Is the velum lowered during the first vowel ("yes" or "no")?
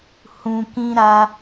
yes